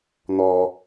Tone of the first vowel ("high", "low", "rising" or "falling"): high